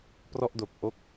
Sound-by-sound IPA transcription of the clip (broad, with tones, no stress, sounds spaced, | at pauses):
p r ɔ˥˩ ʔ d o˨˩ k̚ ʔ o˥˩ k̚